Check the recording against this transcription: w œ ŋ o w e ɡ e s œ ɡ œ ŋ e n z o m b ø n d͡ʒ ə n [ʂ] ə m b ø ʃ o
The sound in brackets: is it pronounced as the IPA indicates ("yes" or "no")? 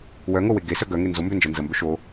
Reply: no